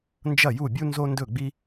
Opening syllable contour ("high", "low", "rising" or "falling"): falling